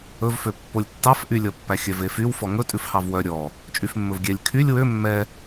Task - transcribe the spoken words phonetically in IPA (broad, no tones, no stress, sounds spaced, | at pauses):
ɵ v f ø pː o lʲ tː ɑ f ʔ y lʲ ɔ pː æ xʲ œ v e f y w f ɔ ŋ ɵ tʼ ʉ f h ɑ v w œ ɾʲ ɔ | t͡ʃʼ y f mː ɵ v ɡʲ ɛ lʲ kʰ y lʲ w ø mː ɛ